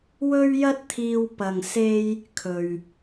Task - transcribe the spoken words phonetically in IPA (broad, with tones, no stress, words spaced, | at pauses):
wɵ˥ɥjɐ˥t̚t̪ʰiː˧w pɐ˨ŋse˧j | kʰɵ˨ɥ